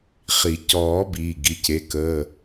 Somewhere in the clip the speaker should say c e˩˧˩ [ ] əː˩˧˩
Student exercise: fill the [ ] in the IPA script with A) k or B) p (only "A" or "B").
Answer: A